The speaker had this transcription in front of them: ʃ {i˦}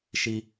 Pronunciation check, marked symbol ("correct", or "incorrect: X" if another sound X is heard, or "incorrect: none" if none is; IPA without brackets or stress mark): correct